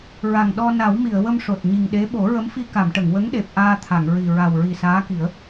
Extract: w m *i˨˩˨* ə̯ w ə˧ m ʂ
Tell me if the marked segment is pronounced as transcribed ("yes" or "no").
yes